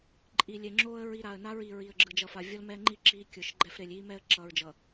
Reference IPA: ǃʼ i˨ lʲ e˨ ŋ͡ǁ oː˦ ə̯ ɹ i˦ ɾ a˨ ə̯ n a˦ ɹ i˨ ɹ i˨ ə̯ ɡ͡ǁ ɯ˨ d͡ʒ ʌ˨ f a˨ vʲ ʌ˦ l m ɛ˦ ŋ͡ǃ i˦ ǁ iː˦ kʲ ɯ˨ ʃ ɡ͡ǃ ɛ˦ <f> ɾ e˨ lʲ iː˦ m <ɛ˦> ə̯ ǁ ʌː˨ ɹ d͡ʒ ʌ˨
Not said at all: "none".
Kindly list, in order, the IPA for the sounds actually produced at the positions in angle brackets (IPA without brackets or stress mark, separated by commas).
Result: f, ɛ˦